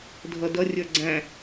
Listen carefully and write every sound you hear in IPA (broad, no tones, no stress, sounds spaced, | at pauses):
dʱ ʌ d ʌ rʲ ə˞ ɡ͡ǀ æ̃